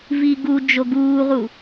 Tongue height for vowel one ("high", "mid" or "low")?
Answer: high